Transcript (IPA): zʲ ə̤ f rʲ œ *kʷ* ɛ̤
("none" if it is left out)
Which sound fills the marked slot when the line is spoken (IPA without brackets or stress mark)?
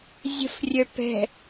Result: p